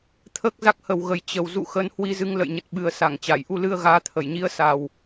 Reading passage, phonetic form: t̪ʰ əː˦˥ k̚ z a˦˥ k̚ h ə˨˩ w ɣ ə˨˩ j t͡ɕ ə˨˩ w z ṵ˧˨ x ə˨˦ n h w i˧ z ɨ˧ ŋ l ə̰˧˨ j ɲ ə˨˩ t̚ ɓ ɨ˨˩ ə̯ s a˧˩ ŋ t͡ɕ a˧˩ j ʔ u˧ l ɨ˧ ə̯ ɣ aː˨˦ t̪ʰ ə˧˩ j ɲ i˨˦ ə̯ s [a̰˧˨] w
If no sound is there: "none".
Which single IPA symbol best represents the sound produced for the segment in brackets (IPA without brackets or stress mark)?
a˨˩